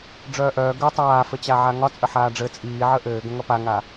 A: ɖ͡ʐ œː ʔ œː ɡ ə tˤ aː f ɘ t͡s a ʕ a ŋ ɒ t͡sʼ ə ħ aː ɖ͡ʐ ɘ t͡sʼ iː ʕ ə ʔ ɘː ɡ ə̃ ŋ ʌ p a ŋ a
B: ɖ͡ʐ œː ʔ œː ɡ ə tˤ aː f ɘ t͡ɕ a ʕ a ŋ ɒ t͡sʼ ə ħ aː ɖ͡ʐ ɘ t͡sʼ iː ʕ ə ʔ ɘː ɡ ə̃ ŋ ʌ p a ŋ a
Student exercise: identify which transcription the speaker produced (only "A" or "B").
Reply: B